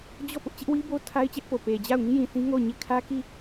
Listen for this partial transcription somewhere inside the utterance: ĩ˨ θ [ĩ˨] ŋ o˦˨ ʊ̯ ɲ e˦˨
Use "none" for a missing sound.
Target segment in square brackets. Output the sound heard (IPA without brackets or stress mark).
ĩ˦